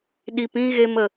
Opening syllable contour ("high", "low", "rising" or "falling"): low